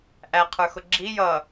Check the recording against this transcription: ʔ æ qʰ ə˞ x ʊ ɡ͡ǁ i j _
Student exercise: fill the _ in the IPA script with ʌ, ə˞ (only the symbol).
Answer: ʌ